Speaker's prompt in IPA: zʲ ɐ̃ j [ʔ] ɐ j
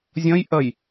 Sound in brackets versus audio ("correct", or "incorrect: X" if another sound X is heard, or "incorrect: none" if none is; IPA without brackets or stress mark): correct